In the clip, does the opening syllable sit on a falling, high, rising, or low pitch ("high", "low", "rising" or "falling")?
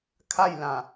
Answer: falling